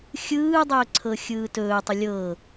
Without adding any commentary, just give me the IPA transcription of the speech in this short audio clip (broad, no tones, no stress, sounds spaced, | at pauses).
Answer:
xʲ ɯː dˤ ɵː ǀʰ ɤ xʲ ɯː t ɵː tˤ ə lʲ ɤ